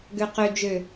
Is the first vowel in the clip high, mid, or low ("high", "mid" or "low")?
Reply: mid